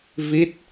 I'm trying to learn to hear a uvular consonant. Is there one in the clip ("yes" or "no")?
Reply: no